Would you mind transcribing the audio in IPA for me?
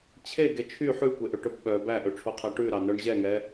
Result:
t͡ɕʰeɡe t͡ʃʰy ħʉkʷeʔøʈɵb ɓœ bæʔɵʈ͡ʂʰoqʰæ ʈʉɾɑnœɳ ʑɛŋɛ

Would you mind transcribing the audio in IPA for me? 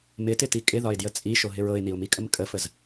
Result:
mɪtɪti kʼɪðɒɪ̯djə t͡sʼiʃoɦɪɹ ɤɪ̯niʊ̯mikʼəm kʼəfəz

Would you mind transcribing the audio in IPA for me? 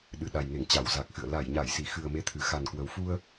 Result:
ɗɨ˨˩ɗa˨˩jŋe˧˩ŋ t͡ɕa˧˩wza˨˩k̚xɨ̰˧˨ə̯ la˧˩jɲa˧˩jsi˧˩xɨ˨˩ə̯ me˧t̪ʰɨ˨˩ xa˨˩nkwə˨˩wfu˧ə̯

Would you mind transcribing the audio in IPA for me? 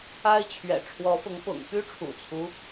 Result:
a˦ɪ̯ t͡ɕʰɥɛ̰˨˩ ʈ͡ʂʰwɔ˨˦fʊ˨˦ŋpʊ̰˨˩ŋ py˦ʈ͡ʂʰṵ˨˩t͡sʰu˦

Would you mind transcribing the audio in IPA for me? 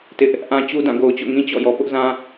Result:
tɪ˦ʔ | ʔã˦ t͡ɕu˦dã˦˨ ɡo˨ʊ̯t͡ɕo̰˦˨ŋĩ˦ t͡ɕɔ̰˦˨jɔ˨ pʊ˦ʔzã˦

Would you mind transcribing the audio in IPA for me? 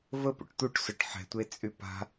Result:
vəpṵʈ t̪uʈsœʈ ħɛ̤tʷe t͡sʼypa̤

